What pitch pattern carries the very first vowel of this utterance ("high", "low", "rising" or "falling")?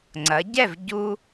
rising